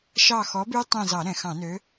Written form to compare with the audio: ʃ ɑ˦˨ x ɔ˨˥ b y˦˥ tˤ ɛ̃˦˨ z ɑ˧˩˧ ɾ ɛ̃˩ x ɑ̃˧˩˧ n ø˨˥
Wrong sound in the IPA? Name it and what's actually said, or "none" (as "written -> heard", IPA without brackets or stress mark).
none